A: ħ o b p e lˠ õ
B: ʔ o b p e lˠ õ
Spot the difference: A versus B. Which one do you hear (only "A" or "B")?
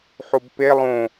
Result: A